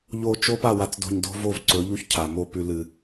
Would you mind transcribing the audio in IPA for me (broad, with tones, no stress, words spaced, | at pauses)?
ʎo˨ t͡ʃo˦pa˦˨ wa˨t͡sdo̤˨ɲ do̤˦vo˦˨vǀɵ˨˦ʎu˦ç cʰa˨mo˦ pʉ˦lɨ˦